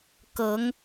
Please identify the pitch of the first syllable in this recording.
rising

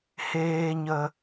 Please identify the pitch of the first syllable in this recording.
low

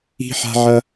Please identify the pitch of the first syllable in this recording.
high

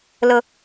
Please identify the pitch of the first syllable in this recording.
low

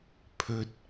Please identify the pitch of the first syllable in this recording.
high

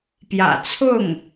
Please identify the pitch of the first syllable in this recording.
low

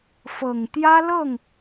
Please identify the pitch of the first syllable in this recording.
low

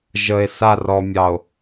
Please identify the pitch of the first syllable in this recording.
low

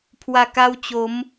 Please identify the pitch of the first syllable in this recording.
low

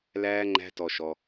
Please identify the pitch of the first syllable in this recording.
high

